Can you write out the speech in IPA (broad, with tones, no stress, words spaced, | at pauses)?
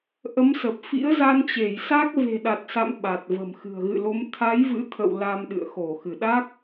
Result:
ʔə˨˦msə˨˩p̚ fḭ˧˥ə̯ za˧nt͡ɕe˧˩jsa˦˥k̚ ve̤˨˩ɗa˨˩t̚sa̰˧˨m ɓa˨˩t̚və̤˨˩mxɨ̤˨˩ə̯ ɣɨ̰˧˨lo˨˦m t̪ʰa˨˦j vɨ̰˧˥t̪ʰə̰˧˨w la˧mɗɨ̰˧˨ə̯xo˧˩ xɨ˧˩ɗa˦˥k̚